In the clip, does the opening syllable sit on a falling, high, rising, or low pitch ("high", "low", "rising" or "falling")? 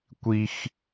high